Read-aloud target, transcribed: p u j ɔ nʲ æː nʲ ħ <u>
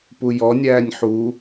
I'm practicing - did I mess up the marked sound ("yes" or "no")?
no